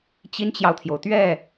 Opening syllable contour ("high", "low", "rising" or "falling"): high